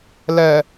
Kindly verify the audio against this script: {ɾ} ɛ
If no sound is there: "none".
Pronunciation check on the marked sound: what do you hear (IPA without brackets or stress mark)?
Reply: l